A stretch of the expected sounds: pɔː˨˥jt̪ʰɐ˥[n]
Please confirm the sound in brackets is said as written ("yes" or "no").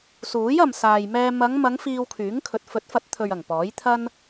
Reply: yes